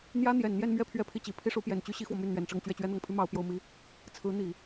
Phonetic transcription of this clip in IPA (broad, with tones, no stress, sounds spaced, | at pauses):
n̪ j ä˥ n̪ j ɛ˨˩ n n̪ j ɛ˥˧ n m ɥ ɛ˥˧ pʰ ɥ ɛ˥˧ pʰ i˥˩ t͡ɕ i˧˥ pʰ i˥ ʂ u˧˥ p j ɛ˨˩ n t͡ɕ y˥ ɕ i˥ x w ɔ˨ m y˥˩ n n̪ ɥ ɛ˨˩ n ʈ͡ʂ ɤ˥˧ ŋ t͡ɕ ɥ ɛ˥˩ t͡ɕ ɥ ɛ˥ n̪ ɤ˨˩ ŋ pʰ y˥ m ɑ˧˥ ʊ̯ p j o˥ ʊ̯ m i˥ | t͡sʰ ɹ̩˧˥ n̪ i˨˩˦